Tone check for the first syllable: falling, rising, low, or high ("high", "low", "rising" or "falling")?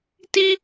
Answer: high